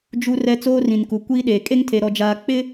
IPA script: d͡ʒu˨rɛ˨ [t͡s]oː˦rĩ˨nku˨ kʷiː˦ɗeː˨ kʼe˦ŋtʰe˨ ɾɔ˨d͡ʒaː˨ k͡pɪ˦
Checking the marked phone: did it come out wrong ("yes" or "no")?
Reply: no